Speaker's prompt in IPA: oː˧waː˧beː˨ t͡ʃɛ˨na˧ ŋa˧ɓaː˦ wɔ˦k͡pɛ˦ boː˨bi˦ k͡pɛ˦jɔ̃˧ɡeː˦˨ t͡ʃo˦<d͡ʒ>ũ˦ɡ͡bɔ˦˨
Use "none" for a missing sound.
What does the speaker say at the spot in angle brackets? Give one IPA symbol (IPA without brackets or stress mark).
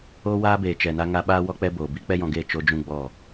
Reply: d͡ʒ